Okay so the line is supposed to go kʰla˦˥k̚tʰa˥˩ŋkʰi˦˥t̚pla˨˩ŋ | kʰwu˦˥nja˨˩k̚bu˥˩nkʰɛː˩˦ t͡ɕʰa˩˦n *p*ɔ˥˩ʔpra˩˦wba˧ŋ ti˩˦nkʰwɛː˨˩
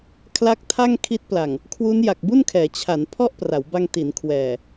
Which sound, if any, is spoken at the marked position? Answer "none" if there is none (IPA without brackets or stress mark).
pʰ